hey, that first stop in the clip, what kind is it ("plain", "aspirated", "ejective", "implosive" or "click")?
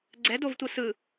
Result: click